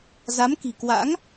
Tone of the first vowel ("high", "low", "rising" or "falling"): rising